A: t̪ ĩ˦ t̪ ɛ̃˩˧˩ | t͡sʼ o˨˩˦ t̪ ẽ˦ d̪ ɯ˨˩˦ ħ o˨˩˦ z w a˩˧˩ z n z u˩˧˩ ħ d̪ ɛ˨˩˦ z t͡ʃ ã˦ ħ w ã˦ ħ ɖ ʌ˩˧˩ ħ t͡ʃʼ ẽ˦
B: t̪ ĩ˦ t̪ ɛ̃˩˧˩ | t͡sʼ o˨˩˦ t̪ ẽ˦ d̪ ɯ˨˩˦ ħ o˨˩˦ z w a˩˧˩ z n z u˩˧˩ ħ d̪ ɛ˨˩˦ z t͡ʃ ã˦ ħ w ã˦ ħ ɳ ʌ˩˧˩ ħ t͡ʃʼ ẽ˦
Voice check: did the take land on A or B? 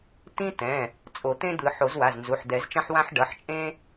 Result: A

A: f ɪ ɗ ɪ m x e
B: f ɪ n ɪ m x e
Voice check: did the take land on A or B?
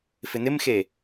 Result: B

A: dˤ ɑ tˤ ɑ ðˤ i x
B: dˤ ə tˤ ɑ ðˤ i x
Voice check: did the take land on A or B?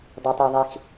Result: B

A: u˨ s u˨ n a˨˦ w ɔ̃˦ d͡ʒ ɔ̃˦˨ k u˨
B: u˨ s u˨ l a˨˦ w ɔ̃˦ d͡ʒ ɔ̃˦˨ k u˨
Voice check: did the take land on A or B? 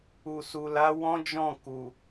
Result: B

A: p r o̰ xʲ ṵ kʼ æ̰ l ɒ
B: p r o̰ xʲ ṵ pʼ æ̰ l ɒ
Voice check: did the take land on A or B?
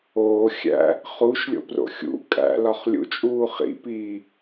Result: A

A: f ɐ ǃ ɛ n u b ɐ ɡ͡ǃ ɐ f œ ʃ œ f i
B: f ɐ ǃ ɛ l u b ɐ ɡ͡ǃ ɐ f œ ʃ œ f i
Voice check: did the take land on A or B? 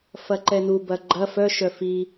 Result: A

